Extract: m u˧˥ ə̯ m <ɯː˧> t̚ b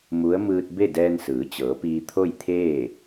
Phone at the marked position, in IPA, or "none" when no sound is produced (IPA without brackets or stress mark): ɯː˧